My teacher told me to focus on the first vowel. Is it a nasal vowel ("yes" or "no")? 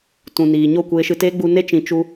yes